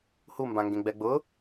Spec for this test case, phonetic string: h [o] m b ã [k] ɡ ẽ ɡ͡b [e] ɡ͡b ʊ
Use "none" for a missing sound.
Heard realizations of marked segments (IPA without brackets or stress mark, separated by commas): u, ŋ, ɛ